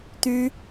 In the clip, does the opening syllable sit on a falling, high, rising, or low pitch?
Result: high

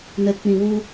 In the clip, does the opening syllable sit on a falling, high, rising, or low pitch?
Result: low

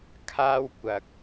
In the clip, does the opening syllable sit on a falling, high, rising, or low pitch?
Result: high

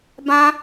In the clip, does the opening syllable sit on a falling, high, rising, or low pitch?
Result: high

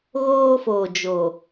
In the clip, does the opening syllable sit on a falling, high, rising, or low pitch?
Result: high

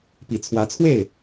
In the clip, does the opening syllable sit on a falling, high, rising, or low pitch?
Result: low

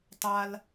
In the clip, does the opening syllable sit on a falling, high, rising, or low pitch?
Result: high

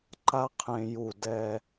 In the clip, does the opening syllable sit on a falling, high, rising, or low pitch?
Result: high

